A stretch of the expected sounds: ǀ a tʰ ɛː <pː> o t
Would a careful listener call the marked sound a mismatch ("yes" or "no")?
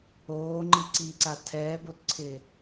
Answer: yes